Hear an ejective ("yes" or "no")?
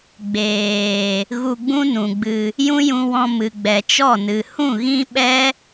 no